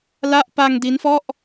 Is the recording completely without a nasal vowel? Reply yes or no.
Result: yes